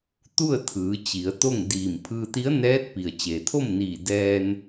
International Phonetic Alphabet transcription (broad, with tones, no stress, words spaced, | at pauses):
t̪u˥˨ə̯t̪ʰɯː˩˧ t͡ɕi˩˧ə̯t̪o˥˨ŋdiː˧˩m pʰɯː˧t̪i˧˥ə̯nɛː˧˥t̚pi˩ə̯ t͡ɕeː˩t̪ʰo˥˨mniː˧˩ dɛː˧n